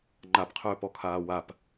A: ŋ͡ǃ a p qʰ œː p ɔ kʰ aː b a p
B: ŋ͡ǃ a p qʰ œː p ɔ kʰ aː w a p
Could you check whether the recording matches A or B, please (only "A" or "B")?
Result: B